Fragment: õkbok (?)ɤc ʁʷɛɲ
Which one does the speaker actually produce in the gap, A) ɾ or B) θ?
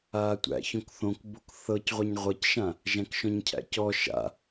B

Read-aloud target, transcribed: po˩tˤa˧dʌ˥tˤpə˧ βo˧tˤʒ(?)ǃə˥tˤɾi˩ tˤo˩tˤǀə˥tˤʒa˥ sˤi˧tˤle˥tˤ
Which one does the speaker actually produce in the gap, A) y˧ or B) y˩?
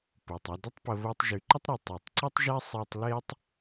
B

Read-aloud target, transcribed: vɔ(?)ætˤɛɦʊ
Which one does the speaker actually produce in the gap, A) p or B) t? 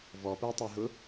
A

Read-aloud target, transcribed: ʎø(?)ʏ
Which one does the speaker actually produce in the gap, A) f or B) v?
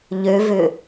B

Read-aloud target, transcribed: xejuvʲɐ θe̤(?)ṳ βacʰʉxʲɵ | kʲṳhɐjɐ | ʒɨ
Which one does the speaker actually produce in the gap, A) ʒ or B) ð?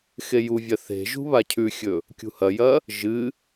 A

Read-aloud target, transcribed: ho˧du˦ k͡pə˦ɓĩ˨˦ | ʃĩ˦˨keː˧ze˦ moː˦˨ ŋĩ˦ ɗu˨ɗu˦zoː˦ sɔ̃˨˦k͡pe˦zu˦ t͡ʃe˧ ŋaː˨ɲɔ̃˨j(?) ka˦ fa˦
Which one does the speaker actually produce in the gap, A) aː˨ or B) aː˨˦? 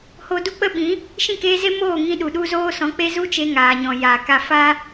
A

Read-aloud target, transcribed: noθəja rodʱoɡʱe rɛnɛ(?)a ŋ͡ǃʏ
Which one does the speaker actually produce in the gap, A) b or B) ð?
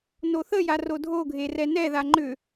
B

